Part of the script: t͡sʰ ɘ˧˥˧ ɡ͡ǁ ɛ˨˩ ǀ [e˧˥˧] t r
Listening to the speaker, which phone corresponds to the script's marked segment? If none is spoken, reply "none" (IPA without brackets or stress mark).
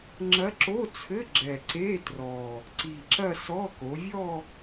e˧˥˧